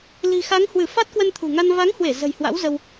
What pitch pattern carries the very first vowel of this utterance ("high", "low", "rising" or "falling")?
low